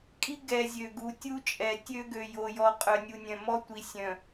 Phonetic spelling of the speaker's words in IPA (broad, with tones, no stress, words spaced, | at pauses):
kʼi˦ ɡɛ˨ zʲø˨ɡu˨tʲu˦t͡ʃʼɛ˨ tʲø˦ɡø˨jo˨jɔ˨ qʼœ˨nʲu˨nʲœ̃˨mɔ˦ tʷi˨sʲœ̃˨